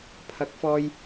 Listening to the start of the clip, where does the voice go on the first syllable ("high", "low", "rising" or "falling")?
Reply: low